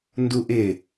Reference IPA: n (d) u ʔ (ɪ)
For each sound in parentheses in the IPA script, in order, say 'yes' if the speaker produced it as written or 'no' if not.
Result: yes, yes

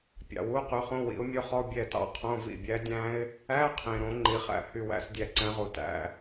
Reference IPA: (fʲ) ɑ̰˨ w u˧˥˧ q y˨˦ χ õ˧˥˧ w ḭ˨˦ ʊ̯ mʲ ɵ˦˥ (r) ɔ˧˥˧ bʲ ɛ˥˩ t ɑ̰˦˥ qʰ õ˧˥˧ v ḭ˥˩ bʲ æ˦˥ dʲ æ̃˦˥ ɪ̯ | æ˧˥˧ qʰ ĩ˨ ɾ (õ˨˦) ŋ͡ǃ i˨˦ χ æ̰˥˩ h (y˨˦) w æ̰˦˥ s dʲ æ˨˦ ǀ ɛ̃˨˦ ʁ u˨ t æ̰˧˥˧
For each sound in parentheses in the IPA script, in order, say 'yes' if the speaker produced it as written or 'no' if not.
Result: no, no, yes, no

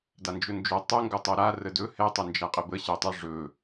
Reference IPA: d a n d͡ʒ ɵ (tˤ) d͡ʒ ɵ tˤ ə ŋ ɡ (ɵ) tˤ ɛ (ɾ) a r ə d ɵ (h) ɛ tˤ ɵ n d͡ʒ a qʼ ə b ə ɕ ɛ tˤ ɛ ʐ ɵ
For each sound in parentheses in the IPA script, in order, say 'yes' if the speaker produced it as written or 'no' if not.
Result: no, yes, yes, yes

